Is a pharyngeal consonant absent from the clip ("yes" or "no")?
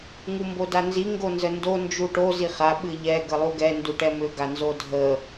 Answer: yes